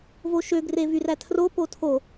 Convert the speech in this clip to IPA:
v o ʃ ø ɡ r e v y r æ tʰ r o p o tʰ o

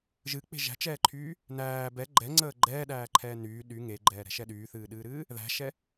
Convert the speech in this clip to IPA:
ʒ ɨ k͡p e̤ ʒ æ̤ t͡ʃ ɛː ǃʰ yː | n æː b ɛ ɡ͡ǃ ɛ ŋ͡ǀ əː ɡ͡ǃ ɛː ɗ æː ǃʰ ɛː n yː ɗ y ŋ e ɡ͡ǃ ɛː ɾ ɛ̤ ʃ ɛ ɗ yː θ ɨː ɗ ɨː ɾ ɨː | ð æ̤ ʃ ɛ

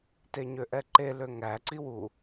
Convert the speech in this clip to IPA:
t e ɲ ø ʔ ɛ ǃ e l ø ŋ æ ǀ i w u

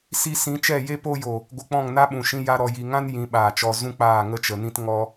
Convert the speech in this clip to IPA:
s i˧ s ĩ˨˦ t͡ʃ ɛ˦˨ j e˦ p o˦ j o˨ | ɡʷ ə˧ k͡p ɔ̃˦˨ ŋ n a˦ ɓ ũ˨ ʃ ĩ˧ j a˦ ɾ ɔ˧ j i˨ ŋ ã˦ n j ĩ˨˦ ɓ aː˨ t͡ʃ ɔ˧ z ũ˦ k͡p aː˦˨ ŋ ə˦ t͡ʃ ə˨ n ĩ˦ t ŋ ɔ˦

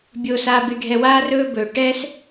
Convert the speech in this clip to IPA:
bʲ oː˧ s aː˧ b i˧ ɖʱ ɛ˧ w aː˦ r ɵː˦ b ɵː˧ ʈ ɛ˦ s

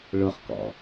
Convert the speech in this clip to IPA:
ɭ ʊ χ k ɔ̰

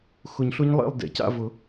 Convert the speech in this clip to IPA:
x ʊ˨˩˦ ɲ ɬ ʊ˦˥ ɲ lˠ ḛ˥˨ lˠ d ḛ˨˩˦ c a̰˥˨ v ʊ˨˩˦

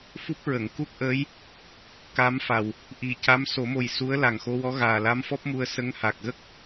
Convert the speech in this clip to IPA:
f u˦˥ p̚ ɹ ə˨˩˨ ŋ k u˦˥ k̚ ʔ əː˧˥ j | k a˧˥ m f a˨˩ w | ʔ i˨˩ c a˧˥ m s o˨˩˦ m o˨˩ j s u˧˥ ə̯ l a˨˩ ŋ x o˧ w ɔ˧˥ ɣ aː˨˩ l a˧˥ m f ɔ˦˥ p̚ m u˧ ə̯ s ə˧˥ ŋ h a˨˩ k̚ ɣ ə˦˥ k̚

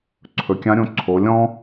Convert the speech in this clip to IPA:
ǀʰ ɵ˩ kʲ ã˧˥ ɾʲ õ˧ ǀʰ o˩˧ lʲ ɔ̃˥

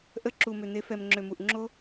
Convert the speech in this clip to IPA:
ʔ ə˨˦ ǁ u˨ m ø˨ n̪ e˨˦ f ɛ˨ m ŋ͡ǁ ø˨ m u˨ ʔ ŋ͡ǁ o˦

